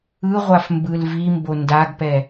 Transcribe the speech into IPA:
ɯ ʁʷ a f m b ɯ l v i m b o n d a ɡ p ɛ

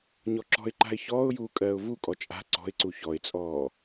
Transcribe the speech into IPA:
ɲ ɔ ǁ ɔ̤ ɪ̯ ǃ a̤ ɪ̯ ç ɔː ʊ̯ j uː kʼ ɜː ʊ̯ v u kʼ ɔ t͡ʃʼ a̤ ǀ ɔ̤ ɪ̯ ǀ u ç ɔ ɪ̯ t͡sʼ ɔː

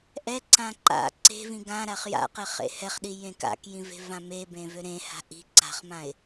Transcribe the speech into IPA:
ʔ ɛ ǀ ã ǃ a̰ ǀ e̤ v ĩ ɡ ã ɾ a χ j a̰ q ɛ χ ḛ h ɛ χ ɗ i j ẽ k a̰ k j ĩ v e̤ v ã m e b ẽ v ø ɾ ẽ h a̤ ʔ i̤ ǀ a̤ χ m ã ɪ̯

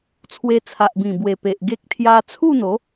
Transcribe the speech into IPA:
t͡sʰ w e˧ t͡sʰ a˨ ʔ b ĩ˨˩ b w e˨˩ p e˨ ʔ ɡ e˦ k̚ t̪ʰ j a˧ t͡sʰ u˥˧ n̪ o˨˦

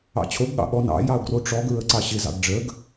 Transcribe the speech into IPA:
ɑ̰ t͡ɕʰ o ɡ ɠ ɑ̰ ɠ ɔ n ɑ̰ j ɑ ʊ̯ ɡ r o ʈ͡ʂ ɔ ɡ ɹ ə ǀ ɑ ɕ ɪ z ɑ̰ ɡ ɖ͡ʐ ə ɡ

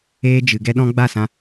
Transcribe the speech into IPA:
eː˧ d͡ʒ ɨ˨ ɡ ɛ˧ ɗ ɔ̃˧ ɡ͡b a˦˨ s ã˧

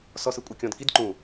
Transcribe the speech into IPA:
s ɔ s ɯ kʷʼ ɛ kʲ ɔ̃ d k i d ǃ ũ

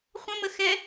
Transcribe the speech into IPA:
χʷ ə̃ m ə x ɛ

